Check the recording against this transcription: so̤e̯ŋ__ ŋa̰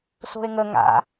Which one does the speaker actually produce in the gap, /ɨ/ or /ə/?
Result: ə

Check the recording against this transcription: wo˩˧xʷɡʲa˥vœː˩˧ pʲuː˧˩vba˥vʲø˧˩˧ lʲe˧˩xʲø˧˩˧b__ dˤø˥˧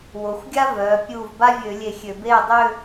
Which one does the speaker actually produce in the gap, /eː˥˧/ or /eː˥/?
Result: eː˥˧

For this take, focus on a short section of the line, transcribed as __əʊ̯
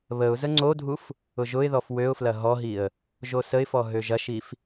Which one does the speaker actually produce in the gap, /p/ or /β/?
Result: β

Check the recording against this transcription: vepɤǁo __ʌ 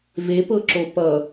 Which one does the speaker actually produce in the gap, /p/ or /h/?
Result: p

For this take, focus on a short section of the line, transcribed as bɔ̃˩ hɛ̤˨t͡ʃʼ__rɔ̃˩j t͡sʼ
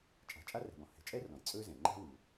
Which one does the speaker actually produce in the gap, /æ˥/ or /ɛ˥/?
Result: ɛ˥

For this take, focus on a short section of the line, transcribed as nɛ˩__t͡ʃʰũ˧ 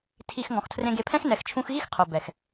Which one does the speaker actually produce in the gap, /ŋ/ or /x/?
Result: x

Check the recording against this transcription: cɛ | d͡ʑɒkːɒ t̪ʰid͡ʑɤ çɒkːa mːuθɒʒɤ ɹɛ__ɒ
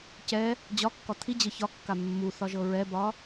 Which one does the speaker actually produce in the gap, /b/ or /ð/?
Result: b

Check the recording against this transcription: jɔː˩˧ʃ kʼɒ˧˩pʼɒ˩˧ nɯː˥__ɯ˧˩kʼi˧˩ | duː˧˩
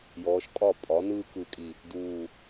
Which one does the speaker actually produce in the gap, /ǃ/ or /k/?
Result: k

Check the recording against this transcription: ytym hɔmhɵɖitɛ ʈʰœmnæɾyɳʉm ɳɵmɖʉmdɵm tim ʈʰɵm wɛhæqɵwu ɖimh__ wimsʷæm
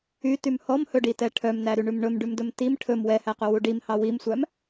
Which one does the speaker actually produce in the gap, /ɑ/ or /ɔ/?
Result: ɑ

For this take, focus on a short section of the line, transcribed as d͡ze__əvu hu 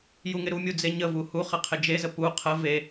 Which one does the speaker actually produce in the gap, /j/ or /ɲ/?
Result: ɲ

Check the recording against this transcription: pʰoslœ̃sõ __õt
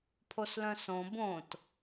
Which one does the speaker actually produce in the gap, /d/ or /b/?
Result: b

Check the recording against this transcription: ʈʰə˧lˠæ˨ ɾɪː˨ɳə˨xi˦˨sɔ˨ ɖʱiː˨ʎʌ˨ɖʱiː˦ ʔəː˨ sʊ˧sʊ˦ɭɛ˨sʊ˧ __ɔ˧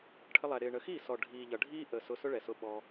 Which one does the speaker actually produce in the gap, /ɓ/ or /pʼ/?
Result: ɓ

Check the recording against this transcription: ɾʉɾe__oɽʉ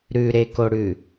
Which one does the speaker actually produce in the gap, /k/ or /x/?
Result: k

